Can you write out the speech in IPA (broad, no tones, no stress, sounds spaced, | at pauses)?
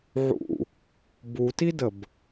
ʕ ṵ | b u t i d ə b